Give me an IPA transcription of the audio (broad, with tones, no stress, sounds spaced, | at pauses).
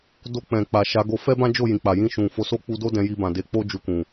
d o˧ k͡p ɛ̃˨ k͡p a˨ ʃ a˨˦ ɡ o˧ f ɛ˦ b ã˦ d͡ʒ o˦˨ j ĩ˨ k͡p a˨ j ĩ˧ ʃ ũ˨ f o˨˦ s o˦ k͡p u˧ d o˦ d ɛ̃˧ j i˧ b ã˨ d e˧ k͡p o˦ d͡ʒ u˧ k ũ˨